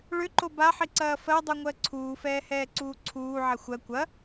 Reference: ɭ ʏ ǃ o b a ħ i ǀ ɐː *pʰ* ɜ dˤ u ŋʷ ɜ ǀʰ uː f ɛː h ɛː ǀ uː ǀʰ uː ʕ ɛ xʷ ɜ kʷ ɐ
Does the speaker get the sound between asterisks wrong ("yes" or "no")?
yes